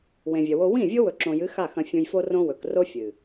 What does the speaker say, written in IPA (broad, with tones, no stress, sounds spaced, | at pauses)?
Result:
w ẽ˨ vʲ ɐ˨ w o˧ w ĩ˦˨ vʲ o˦ w ɵ˨ ǁ õ˨ j ɨ˨˦ x a˦˨ x ɐ̃˧ fʲ ũ˧ j f o˦ r õ˦ w ɵ˨ k r o˦ fʲ ɨ˨